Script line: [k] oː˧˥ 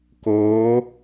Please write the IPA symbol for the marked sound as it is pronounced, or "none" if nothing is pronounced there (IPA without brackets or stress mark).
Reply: k